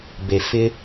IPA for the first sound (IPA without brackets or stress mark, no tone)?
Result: b